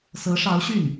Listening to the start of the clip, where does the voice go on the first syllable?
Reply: rising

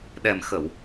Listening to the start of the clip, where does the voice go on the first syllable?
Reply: low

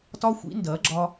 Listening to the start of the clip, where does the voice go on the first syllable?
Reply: high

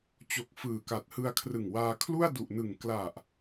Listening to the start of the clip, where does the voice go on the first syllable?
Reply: low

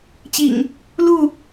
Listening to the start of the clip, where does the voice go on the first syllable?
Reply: low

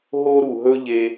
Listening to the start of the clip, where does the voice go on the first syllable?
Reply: high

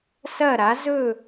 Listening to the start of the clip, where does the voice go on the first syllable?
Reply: falling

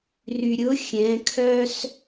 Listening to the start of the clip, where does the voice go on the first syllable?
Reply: low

